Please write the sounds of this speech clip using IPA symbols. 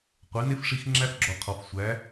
qʷɛ˨˦ne˦fʂi˧x ŋ͡ǁæ˦fɡ͡ǁɔ˨qʰɔ˨f sʷæ˨˦

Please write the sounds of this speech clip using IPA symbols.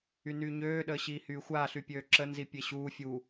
ynyːɲøː ɗəːɕiːhyːxʷaː ɬypʲøːǁə nzipʲeɕuː fʲu

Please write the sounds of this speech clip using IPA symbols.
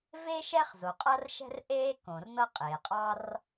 ve˥ ʃɛː˥χzo˩qʼa˥rʃɛ̤˥r ʔeː˥ kõ˩r nɤ˥qʼeː˩qʼɑ˥r

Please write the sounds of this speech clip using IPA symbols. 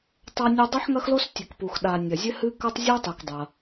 tˤa˥nʲɐ˥ dˤɨ˥ħŋɐ˥xlo˥s tʲɨ˩kpu˩x ɗa˩ nʲɐ˩zʲɘ˥ hɨ˥ kɐ˥tˤzʲu˥tˤi˩k dˤɐ˩

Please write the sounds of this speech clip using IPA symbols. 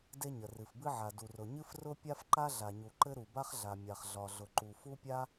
de˥ɲə˩ rɨ˩fbɨ˥ ʕa˩du˩rʊ˩ ɲɨ˥frʊ˥ pʲa˥fǃa˥ ɮa˩ɲu˩ǃɘ˥ ɾu˩ba˥χɮa˩ mʲa˩χɮɒ˩ ɮʊ˩ǃu˩ fu˥pʲa˥

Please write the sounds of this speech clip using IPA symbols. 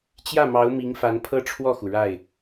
t͡ɕjä˥˩mɑ˧˥ʊ̯ mi˧˥ŋfa˧˥n pʰɤ˥˧ʈ͡ʂʰwɔ˥˩xu˩ ɻa˥˩ɪ̯

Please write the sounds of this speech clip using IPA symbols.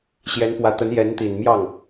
ɕjɛ˧˥n pwä˧˥t̪ə˧˥njɛ˧˥nt̪i˨˩n mjɑ˥˩ŋ

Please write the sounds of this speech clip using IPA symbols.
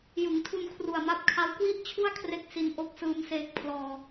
jɯ˩˦ŋtʰu˧n kʰru˨˩a̯ma˦˥p̚kʰa˦˥w kwi˥˩ʔt͡ɕʰu˥˩a̯kʰre˦˥k̚ si˧nʔo˦˥k̚ sɯː˦˥mseː˦˥k̚ pʰlɔː˧

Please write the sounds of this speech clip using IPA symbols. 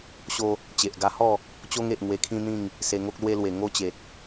ɕo˧ | t͡ɕe˨ʔ ɡa˧hɔ˥˧ | t͡ɕo˧ŋe˨ʔ ŋwe˧kʰĩ˦n̪ĩ˥˧ŋ | se˧ŋo˦k̚lwe˦lwe˨˩ ŋo˥˧t͡ɕe˨t̚

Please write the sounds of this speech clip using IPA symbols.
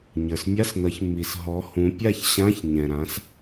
ɲə˞˨smʲa˧˥˧snʌ˨˦ç mːi˨s ɦɔ˨˦hũ˨˦ pʲa˥˨çɕã˧˥˧ç ɲɛ̃˨ɾã˨˦s

